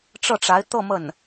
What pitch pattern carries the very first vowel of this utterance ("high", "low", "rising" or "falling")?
falling